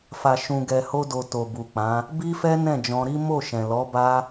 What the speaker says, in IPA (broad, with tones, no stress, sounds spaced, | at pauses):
f a˨ ʃ ũ˨ ɡ ɛ˨ h o˧ d o˨ t o˨ b u˨ k͡p ã˨˦ | b i˦ f ɛ˦ n ɛ̃˦˨ d͡ʒ ɔ̃˧ ɾ i˦ m o˦˨ ʃ ɛ̃˨ l ɔ˨˦ b a˦